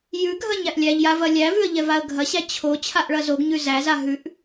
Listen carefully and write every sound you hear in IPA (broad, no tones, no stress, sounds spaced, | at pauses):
j ʉ ɡʱ ɐ ɲ æ ʔ lʲ æ ʎ j a v ɐ lʲ æ v ʉ ə̯ ʎ ɛ v a ə̯ ɡʱ ɐ ɕ æ t͡ɕʰ o t͡ɕʰ a ʔ ɭ ɐ z o ɡ ɲ ʉ z æ z a ɦ ʉ ʔ